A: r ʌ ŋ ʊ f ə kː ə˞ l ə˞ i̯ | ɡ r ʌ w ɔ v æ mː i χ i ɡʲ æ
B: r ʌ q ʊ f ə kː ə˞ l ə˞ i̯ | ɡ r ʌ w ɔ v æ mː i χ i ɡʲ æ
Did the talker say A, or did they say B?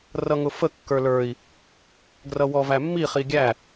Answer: A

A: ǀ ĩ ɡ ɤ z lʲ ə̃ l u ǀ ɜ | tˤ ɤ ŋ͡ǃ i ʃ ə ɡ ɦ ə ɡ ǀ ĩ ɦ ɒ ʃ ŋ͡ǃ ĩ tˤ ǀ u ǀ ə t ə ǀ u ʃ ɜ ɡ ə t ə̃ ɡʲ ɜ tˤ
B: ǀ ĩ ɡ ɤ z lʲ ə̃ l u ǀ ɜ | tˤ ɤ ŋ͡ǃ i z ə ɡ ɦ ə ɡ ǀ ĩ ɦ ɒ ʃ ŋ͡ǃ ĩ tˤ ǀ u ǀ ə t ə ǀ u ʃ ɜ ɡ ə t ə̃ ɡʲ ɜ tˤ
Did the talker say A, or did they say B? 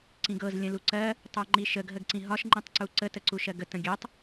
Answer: A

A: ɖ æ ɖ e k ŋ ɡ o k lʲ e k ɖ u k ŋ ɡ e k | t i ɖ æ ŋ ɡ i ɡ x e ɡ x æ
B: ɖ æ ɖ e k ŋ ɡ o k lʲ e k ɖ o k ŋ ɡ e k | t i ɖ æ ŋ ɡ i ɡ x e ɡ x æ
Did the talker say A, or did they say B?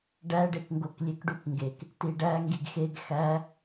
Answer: A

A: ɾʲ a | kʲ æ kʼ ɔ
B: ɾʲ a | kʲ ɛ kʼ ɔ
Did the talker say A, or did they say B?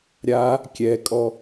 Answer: B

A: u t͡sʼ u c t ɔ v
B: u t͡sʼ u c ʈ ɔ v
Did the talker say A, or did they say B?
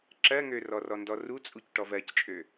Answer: B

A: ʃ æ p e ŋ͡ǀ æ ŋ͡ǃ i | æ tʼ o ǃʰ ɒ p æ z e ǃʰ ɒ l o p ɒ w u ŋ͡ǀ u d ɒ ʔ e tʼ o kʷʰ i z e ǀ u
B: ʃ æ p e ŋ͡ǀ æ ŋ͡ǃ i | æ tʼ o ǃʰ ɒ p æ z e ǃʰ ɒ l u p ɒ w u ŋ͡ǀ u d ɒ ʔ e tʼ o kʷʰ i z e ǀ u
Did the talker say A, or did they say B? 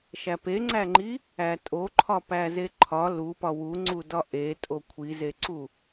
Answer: B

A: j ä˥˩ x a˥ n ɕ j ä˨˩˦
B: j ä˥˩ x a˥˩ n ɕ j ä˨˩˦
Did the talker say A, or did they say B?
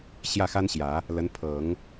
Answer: A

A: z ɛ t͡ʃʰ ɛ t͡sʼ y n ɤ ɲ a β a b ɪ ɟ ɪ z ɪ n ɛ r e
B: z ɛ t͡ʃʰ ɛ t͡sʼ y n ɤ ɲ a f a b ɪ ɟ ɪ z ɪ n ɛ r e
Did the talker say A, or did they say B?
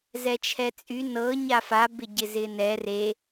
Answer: B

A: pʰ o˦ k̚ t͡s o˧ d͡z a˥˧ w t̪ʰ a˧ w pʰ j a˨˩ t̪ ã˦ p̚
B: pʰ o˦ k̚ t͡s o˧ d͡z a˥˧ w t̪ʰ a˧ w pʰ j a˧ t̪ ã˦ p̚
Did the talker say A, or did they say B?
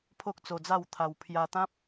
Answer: B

